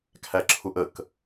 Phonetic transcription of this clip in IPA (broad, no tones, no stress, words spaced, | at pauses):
kʰæǁʰuʔək